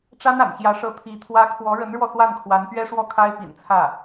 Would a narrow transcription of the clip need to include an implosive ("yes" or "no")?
no